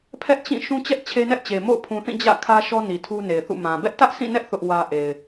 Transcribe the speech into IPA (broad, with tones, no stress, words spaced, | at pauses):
pʰɛ˦ʔt͡ɕĩ˦˨ ʃũ˦t͡ɕɛ˦ʔ t͡ɕʰe˦nɛ˦ʔt͡ɕe˨ mo̰˦˨ʊ̯pʰũ˨θĩ˦˨ d͡ʑä̰˦˨ kʰä˦ ʃɔ˦ ni˨tʰu˦ne˨ɪ̯θṵ˦˨ mã˨ bɛ˦ʔtä˦ʔsĩ˦˨nɛ˦ʔ θʊ˦ʔwä˦ ʔe˨ɪ̯